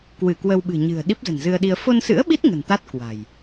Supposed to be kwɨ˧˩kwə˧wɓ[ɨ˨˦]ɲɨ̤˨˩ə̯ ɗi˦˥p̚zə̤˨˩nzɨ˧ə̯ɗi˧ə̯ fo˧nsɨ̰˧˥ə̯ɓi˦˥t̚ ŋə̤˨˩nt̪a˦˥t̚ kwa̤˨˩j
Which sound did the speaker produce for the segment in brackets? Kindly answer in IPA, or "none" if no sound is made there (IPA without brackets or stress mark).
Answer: ɨ̤˨˩